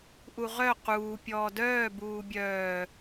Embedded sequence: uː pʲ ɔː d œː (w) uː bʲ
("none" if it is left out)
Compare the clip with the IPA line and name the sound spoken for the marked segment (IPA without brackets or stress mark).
b